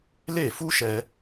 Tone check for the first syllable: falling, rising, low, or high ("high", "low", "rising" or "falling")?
falling